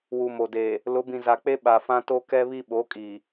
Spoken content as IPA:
wu˨mo˨deː˨ | lʊ˨˦bĩ˨za˨k͡pe˦ ɓa˨fã˦ to˦kɛ˦βi˦ ɓo˨˦kʼiː˨

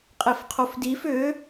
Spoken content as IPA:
qʼefqʰofdif ʏ

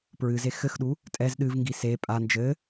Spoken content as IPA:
pɹɨze xɘxɗu | tʼɛz ɗɨvŋɡi se pʼa nd͡ʒɘ

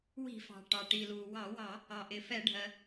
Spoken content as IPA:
wi̤˧˩˧fɑ̤˩ ʈɑ˩ʈi˩luː˩ wɑ˧˩˧wɑ˧˩˧ | ɑ˩ʔɪ˩fɛ˧˩˧ɖʱɜ˩

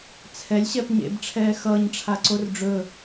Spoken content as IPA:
t͡sʰɛlʲ ɕɛpɲḛb ʈ͡ʂʰɛːxʌːɲ ʈ͡ʂʰaǀorɖ͡ʐɵ

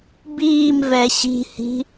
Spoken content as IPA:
biːmvɛ ɕi̤hi̤

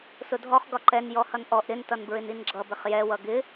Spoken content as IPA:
sʊdʱɔχ ɡɒǃɛn jɔhʌnʔɔʔ ɾɪn tʌnbɹɪninɡ͡ǁʌ bɪχjɛ wʌɡɪ

